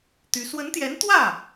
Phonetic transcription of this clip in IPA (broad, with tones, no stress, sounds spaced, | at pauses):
t̪ y˧˥ s w ə˧˥ n t̪ j ɛ˧˥ n t̪ w ä˥˩